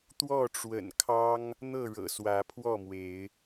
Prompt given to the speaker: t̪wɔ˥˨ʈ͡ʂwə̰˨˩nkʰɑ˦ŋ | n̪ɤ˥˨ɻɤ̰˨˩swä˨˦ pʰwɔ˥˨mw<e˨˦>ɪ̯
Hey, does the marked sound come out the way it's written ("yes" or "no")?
yes